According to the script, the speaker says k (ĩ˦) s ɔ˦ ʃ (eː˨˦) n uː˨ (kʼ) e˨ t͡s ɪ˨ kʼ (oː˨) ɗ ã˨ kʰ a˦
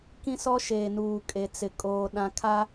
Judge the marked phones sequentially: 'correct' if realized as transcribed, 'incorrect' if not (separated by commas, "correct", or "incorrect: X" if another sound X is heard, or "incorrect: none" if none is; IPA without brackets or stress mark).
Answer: correct, incorrect: eː˨, correct, correct